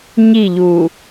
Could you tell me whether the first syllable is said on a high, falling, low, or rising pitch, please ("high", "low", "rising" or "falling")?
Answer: falling